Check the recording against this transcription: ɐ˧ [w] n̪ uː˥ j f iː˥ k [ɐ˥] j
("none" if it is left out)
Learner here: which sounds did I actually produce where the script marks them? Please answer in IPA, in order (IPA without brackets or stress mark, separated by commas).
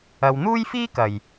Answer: w, ɐ˨